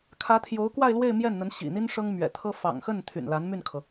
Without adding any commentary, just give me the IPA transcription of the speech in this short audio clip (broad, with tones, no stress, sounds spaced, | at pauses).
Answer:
kʰ ä˧˥ t̪ʰ j o˧˥ ʊ̯ k w a˥˧ ɪ̯ l w e˥˧ ɪ̯ m j ɛ˥˩ n n̪ ə˧˥ n ɕ ḭ˨˩ n̪ i˥ n ʂ ɤ˥ ŋ m ɥ ɛ̰˨˩ t̪ʰ ɤ˥ f ɑ̰˨˩ ŋ x ə˥˩ n t̪ʰ y̰˨˩ n l a˧˥ n m y˥˩ n kʰ ɤ˩